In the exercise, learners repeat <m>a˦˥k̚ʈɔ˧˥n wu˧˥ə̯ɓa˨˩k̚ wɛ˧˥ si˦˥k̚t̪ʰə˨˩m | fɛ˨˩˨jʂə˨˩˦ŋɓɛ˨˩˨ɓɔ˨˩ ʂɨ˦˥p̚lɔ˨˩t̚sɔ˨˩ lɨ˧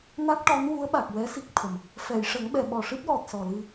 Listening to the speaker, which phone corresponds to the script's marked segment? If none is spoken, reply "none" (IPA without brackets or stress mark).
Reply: n